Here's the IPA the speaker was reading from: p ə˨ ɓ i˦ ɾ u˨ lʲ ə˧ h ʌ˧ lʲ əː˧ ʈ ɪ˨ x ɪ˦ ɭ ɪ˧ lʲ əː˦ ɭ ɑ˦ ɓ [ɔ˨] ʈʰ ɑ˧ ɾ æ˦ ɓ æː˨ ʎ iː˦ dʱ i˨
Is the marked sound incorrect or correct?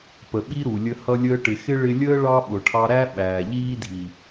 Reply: incorrect